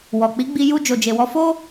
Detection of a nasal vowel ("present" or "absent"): absent